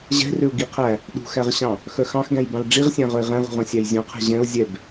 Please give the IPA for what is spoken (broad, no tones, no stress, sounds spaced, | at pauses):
ʑ ɛ̤ r ø ʊ̯ ɡ i qʰ æ | ɗ ṳ x æ ʁ ɕ ɑ̃ | x œ x ɑ̃ x ɡ æ̃ j b ɑ̃ l ɖ͡ʐ i ʁ sʲ æ̃ ʁ œ ɪ̯ ʁ ɛ̃ ʁ ṳ ʁ œ̃ sʲ æ j zʲ ũ qʰ ɛ̤ ʑ ɛ̃ ʊ̯ zʲ ɛ b